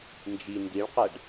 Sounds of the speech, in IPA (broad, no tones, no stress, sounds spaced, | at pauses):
n d͡ʒ i n d i ɭ q ɛ ɖ